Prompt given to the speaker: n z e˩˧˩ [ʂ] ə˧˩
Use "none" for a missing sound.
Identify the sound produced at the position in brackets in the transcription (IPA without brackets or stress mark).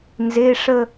ʂ